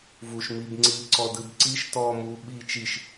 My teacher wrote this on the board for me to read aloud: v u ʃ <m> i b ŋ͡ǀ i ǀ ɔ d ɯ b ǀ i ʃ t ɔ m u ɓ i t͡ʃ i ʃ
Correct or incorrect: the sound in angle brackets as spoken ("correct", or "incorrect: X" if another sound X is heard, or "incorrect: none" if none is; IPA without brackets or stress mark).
correct